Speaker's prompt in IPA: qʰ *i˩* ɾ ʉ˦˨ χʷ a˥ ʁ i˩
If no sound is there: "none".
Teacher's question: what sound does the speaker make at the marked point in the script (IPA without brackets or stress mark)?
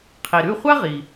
i˩